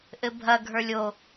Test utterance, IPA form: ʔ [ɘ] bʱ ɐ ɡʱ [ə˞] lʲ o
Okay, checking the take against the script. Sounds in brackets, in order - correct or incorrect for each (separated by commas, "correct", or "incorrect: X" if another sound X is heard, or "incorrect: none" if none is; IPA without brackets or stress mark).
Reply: correct, correct